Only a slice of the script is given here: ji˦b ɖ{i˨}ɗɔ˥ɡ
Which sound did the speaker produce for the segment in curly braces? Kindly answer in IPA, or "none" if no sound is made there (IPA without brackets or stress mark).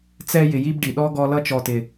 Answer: i˩